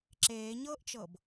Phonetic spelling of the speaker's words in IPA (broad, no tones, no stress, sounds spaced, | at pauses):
ǁ eː ɲ ɤː ʔ t͡ʃ ɤ b